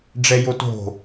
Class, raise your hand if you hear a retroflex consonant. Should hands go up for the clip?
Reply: yes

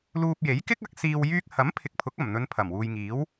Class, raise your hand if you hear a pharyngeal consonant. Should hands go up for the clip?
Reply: no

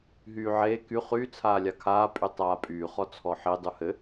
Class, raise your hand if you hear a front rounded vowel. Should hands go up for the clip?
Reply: yes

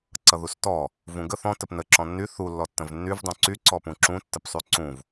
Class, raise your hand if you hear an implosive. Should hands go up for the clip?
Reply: no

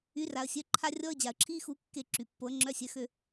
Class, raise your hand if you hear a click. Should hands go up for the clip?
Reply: yes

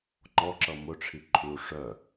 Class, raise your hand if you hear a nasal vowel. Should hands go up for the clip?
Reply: no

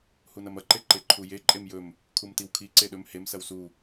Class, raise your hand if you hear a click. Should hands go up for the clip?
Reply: yes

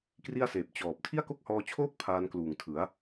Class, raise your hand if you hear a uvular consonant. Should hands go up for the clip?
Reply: no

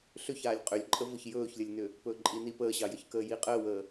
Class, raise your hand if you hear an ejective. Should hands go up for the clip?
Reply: yes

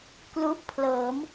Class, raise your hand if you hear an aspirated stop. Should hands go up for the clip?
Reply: yes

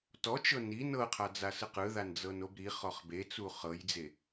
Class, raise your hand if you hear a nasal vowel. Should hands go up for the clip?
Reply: no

